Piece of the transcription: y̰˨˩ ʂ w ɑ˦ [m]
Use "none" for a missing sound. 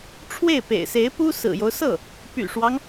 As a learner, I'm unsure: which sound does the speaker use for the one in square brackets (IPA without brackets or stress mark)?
ŋ